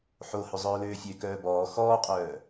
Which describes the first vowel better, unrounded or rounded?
rounded